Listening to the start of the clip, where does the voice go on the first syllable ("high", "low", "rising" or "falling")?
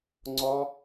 high